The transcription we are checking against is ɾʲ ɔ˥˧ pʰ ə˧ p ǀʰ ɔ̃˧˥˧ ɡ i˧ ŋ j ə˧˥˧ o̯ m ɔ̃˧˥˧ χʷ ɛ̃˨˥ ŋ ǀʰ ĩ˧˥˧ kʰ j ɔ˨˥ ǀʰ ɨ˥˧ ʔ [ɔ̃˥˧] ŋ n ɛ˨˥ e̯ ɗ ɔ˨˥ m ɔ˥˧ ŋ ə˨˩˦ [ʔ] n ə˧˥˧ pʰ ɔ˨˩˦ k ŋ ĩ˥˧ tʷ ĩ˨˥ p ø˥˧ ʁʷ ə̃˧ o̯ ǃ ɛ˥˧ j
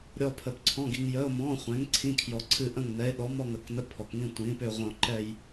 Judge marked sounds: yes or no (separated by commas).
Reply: no, no